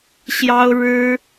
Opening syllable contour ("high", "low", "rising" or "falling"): high